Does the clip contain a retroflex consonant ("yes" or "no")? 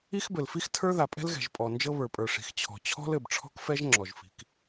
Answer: yes